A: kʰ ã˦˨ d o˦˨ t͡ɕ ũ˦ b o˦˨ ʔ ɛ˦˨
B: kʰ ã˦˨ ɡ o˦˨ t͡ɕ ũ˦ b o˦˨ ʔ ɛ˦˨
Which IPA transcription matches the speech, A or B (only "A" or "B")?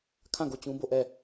B